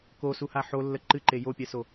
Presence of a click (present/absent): present